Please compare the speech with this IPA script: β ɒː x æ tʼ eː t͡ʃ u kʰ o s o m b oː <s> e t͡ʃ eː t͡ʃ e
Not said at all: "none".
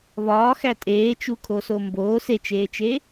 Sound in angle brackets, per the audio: s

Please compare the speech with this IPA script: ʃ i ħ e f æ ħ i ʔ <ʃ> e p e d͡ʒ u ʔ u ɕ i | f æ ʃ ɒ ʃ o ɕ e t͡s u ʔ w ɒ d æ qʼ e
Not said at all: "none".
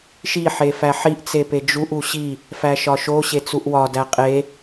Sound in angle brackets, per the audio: t͡s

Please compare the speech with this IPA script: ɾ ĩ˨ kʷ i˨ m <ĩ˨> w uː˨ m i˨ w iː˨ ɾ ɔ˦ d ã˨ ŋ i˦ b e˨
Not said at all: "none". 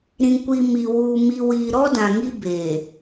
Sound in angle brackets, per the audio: i˨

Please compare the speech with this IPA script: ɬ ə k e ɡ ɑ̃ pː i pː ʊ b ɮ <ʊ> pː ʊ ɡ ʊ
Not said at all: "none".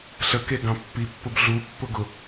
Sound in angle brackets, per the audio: u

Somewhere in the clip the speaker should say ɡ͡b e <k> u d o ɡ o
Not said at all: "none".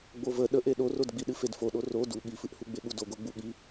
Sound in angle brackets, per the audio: ɠ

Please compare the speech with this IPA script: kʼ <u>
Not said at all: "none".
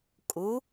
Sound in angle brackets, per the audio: u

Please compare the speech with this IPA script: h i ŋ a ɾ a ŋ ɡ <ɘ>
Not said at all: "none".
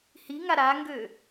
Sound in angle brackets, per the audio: ø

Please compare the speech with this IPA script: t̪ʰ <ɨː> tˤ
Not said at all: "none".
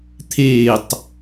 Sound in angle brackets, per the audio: eː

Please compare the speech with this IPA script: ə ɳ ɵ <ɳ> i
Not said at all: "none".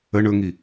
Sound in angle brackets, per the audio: ŋ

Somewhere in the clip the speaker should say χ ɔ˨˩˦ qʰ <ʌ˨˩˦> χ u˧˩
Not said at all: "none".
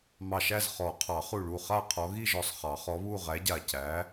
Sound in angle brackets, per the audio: ɑ˨˩˦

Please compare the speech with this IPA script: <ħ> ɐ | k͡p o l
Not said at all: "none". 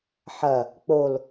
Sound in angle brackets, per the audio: ħ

